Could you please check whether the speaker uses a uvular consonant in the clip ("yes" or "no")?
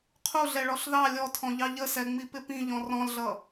yes